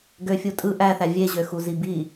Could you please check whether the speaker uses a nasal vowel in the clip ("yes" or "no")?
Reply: no